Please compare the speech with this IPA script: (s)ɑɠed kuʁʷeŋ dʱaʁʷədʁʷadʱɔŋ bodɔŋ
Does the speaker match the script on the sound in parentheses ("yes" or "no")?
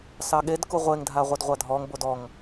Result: yes